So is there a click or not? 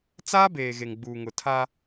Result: no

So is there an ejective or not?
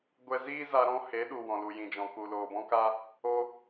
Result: no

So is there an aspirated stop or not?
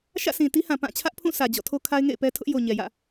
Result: yes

